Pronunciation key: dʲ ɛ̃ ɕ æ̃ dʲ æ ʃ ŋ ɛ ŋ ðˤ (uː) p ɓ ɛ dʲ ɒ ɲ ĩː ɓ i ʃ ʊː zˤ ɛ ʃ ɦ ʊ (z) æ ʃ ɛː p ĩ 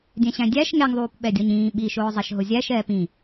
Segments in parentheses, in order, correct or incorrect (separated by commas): correct, incorrect